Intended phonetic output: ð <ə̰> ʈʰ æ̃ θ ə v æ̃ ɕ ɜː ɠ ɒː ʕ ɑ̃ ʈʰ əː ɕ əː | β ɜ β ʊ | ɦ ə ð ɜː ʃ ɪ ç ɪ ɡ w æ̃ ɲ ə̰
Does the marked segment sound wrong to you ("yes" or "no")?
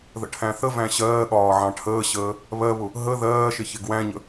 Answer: no